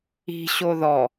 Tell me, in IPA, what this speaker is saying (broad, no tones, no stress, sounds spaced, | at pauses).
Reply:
i̤ ɕ o ð ɔ